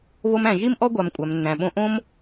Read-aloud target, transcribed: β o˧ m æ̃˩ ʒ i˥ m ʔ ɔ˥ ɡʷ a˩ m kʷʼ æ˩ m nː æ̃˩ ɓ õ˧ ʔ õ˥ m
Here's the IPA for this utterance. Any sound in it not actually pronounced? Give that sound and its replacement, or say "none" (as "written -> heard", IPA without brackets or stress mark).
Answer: none